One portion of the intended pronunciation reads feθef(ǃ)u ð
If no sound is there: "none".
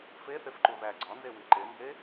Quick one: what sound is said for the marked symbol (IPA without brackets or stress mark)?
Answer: ǃ